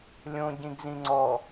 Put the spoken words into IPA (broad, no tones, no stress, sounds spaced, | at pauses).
lʲ õ ɟ ĩ ɡ z ĩ ŋ͡ǀ ɔ